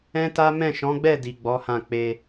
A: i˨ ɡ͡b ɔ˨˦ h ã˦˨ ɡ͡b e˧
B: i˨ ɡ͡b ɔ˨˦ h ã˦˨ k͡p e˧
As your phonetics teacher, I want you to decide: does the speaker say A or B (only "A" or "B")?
B